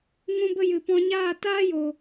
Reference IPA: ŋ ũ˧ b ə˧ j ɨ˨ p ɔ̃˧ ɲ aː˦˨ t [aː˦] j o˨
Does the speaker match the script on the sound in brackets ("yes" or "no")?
yes